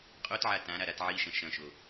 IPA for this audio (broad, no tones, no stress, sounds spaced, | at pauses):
qʼ o t ʕ a t ã ɾ a ɾ a t ʕ i ʃ ɐ̃ ʃ ɐ̃ ʃ o